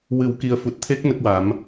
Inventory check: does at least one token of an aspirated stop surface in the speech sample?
yes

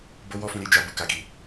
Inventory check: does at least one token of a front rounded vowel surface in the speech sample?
no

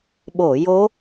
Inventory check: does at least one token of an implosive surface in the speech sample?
yes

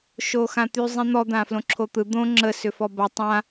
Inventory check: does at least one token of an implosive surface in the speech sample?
no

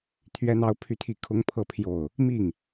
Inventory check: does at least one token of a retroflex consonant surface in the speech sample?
no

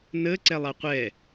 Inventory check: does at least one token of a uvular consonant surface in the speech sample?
yes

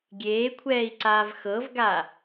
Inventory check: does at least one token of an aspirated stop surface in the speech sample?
yes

